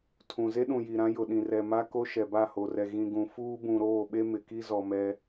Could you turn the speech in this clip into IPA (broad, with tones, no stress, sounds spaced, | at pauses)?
tʰ ũ˨ z e˦ ɗ ũ˨ j i˨ ɾ ã˦ j ʊ˨ ɗ ĩ˨ r ɛ˨ m a˦ k o˦ ʃ ɛ˨ b a˦˨ h o˨ r ɛ˨ ɣ ĩ˨ ɡ ũ˨ f uː˦ b ũ˨ ɾ oː˦˨ ɓ e˦ m ɪ˨ k i˦ z ɔ˨ m ɛ˦